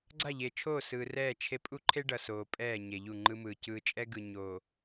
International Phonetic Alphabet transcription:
ɡ͡ǀ a˦˨ ʎ e˨ t͡ʃʰ oː˦˨ s ɯː˨ r ɛː˦˨ t͡ʃʰ e˦ pʼ u˦ ǃʰ e˦ ɖ ʌ˨ s oː˨ pʼ ɛː˦˨ ɲ e˨ ʎ u˦˨ ŋ͡ǃ ɯ˦ m ɯː˨ c ɯː˨ t͡ʃʼ ɛ˦ ɡ ɯ˨ ɲ o˨

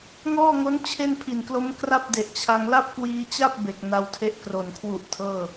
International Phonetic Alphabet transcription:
ŋ ɔː˥˩ ŋ o˦˥ n t͡ɕʰ e˥˩ n pʰ i˨˩ n k l o˦˥ m k r a˥˩ p̚ d e˨˩ ʔ t͡ɕʰ a˧ ŋ l a˥˩ p̚ k w iː˧ t͡ɕ a˥˩ p̚ b e˨˩ k̚ n a˧ w tʰ e˦˥ ʔ k r o˨˩ n kʰ w u˨˩ ʔ tʰ ɤː˥˩

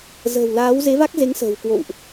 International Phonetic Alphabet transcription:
z ə̤ː˨˩ w l aː˨˦ w z e˨˦ v a˦˥ k̚ z e˨˦ ŋ s ə̤ː˨˩ w k w o̰˧˨ w ʔ

